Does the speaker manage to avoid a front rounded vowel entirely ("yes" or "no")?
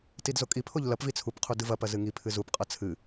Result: yes